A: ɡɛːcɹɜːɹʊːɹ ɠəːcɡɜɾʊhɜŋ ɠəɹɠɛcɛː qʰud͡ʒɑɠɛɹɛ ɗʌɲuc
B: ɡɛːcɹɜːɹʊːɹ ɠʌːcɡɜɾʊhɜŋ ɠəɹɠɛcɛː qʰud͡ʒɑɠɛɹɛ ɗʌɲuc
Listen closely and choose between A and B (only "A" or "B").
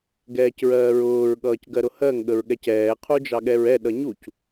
B